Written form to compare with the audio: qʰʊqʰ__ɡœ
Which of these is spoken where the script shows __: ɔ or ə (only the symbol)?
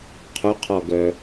ɔ